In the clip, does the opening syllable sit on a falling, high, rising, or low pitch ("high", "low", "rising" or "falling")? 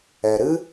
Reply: low